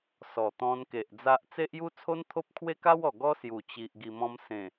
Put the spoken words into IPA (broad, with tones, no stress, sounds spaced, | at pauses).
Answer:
s ɔ˨˩ t̪ ɔ̃˧ n k e˨ ʔ d͡z a˦ ʔ t͡s e˦ ʔ j u˦ t͡sʰ o˦ n t̪ʰ o˦ p̚ kʰ w e˦ k a˦ w ɔ˨˩ ɡ ɔ˦ s j u˨˩ t͡ɕ i˨ ʔ ɡ i˨˩ m ɔ̃˧ m s ẽ˨˩